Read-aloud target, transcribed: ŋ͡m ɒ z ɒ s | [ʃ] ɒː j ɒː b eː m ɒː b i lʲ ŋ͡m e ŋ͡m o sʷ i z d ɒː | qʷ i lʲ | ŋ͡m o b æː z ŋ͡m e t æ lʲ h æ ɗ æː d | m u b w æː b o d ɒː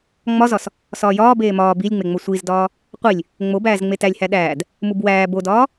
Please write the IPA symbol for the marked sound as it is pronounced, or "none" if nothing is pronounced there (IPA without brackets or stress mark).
s